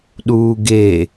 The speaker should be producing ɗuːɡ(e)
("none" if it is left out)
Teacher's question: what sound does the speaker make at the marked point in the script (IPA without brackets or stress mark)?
e